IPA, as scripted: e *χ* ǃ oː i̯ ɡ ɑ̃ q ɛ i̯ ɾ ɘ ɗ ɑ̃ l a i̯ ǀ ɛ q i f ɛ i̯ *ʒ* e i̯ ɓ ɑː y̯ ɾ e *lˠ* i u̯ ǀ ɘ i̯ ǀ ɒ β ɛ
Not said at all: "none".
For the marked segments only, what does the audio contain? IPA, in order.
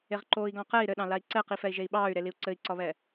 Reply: ʁ, ʒ, l

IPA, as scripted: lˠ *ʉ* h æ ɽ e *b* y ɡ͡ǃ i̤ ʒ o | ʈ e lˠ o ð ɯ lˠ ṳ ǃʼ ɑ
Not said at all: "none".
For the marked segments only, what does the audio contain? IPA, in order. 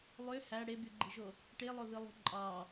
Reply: ø, b

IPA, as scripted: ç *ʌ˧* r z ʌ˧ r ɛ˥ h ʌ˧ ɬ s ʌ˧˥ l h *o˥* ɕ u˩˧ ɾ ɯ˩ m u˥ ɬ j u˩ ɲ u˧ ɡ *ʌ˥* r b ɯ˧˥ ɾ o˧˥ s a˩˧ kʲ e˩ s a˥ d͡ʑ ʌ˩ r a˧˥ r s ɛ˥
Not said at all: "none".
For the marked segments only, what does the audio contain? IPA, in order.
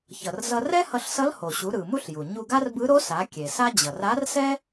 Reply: ʌ˩, o˩, a˥

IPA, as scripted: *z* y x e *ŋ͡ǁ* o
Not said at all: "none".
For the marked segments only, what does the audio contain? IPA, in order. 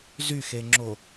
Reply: z, ŋ͡ǁ

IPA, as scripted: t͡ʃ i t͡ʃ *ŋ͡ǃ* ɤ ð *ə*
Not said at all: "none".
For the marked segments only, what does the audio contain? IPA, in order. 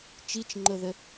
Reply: ŋ͡ǃ, ə

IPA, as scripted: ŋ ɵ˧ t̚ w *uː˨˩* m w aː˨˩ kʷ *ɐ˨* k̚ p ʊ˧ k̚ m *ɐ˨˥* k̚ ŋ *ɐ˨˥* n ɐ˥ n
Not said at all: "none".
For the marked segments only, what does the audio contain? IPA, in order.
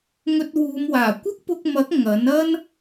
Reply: uː˨˧, ɐ˥, ɐ˨˥, ɐ˨˥

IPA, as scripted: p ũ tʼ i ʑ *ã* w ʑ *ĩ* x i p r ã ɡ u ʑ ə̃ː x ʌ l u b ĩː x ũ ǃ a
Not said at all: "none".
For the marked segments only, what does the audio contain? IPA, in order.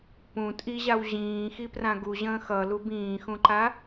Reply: a, ĩː

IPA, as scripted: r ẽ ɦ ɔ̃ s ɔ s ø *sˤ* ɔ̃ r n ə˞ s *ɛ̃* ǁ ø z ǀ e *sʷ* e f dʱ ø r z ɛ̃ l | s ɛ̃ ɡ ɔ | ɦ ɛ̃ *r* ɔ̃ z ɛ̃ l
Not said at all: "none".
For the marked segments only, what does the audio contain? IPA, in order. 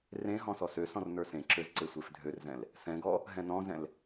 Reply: s, ẽ, sʷ, n

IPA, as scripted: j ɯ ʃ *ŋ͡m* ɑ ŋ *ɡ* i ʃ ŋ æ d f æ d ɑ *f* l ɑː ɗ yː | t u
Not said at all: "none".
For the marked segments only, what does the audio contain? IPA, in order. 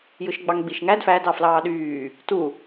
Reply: ɡ͡b, ɡ͡b, f

